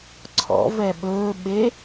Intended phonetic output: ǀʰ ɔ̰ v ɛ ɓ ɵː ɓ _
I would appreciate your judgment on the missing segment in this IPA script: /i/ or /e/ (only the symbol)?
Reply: e